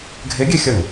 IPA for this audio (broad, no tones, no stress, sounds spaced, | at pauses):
ɡʱ e ɡʲ e xʲ ɐ ŋ